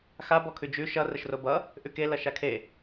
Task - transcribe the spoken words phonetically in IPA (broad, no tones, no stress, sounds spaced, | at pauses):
x a b ɔ kʰ ʉ d͡ʒ ʉ ʃ ʌ r ə ʃ r o b ʌ | ʔ ʉ k e l ʌ ʃ a kʰ e